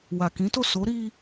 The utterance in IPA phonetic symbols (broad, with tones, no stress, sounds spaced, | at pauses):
w a˨ k ĩ˨˦ t o˦˨ s o˨˦ ɾ i˧